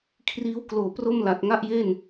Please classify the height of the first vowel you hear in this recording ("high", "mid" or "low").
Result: high